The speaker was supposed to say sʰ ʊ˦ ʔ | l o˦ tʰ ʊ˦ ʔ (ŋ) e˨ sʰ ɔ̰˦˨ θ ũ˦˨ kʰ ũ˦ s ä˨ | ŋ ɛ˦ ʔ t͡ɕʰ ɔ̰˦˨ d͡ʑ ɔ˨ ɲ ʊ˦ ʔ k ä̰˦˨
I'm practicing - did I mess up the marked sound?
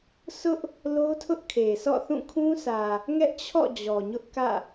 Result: yes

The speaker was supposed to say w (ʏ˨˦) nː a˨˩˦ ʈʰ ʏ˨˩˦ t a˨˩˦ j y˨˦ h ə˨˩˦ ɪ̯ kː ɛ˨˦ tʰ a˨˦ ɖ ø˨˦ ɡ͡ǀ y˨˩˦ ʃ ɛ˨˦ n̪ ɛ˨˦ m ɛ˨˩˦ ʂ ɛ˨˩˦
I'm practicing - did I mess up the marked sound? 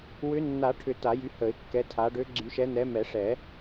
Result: no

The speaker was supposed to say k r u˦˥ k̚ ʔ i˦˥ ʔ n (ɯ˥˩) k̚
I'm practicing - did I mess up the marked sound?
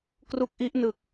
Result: yes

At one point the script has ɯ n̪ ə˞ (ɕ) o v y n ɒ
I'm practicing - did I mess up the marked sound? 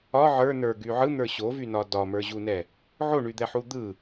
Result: no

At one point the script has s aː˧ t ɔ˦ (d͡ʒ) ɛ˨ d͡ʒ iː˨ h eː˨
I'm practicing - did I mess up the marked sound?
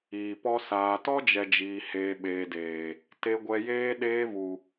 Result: no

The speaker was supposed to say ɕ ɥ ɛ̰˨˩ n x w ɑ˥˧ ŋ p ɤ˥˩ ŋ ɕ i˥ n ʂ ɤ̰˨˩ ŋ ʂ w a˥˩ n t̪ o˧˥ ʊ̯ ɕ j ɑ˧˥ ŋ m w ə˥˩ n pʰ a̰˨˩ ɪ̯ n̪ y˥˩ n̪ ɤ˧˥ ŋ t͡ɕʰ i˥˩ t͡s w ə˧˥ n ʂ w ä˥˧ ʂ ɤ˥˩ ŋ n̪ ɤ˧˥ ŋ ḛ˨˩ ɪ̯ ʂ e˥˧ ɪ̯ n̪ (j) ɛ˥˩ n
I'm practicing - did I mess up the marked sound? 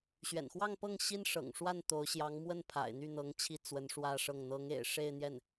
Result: no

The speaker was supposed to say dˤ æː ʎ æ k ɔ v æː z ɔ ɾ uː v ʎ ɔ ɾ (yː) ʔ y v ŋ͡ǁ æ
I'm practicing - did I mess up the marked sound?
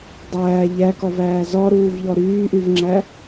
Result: no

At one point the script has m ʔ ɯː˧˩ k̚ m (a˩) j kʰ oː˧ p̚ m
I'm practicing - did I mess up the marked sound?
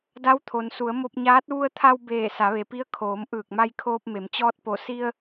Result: yes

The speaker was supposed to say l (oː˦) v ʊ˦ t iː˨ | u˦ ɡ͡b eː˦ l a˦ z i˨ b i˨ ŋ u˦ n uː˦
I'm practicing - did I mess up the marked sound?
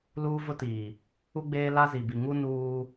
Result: yes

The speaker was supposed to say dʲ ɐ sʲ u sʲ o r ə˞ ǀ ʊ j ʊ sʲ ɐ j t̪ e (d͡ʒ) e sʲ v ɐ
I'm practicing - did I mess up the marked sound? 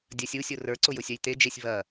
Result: no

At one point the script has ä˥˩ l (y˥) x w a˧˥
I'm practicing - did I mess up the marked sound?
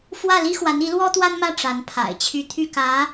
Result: yes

